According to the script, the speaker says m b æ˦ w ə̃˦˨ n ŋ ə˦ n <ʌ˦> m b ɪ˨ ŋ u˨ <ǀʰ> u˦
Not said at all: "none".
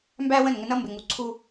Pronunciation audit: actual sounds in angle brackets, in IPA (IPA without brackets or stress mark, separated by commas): ʌ˦, ǀʰ